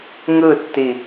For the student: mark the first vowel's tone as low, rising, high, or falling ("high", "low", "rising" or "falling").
falling